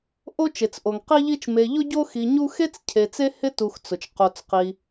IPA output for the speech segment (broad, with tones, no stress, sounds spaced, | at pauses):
ʔ o˦ t͡ʃ e˩ t͡s ʔ o˩ ŋ q i˦ ʎ i˦ t͡ʃ m e˨ ʎ ʊ˦ ɟ o˦ x i˨ ɲ u˦ x e˥ t͡s cʰ e˨ t͡s e˥ h ɪ˥ t u˨ x t͡s ʊ˩ t͡ʃ q o˨ t͡s q i˨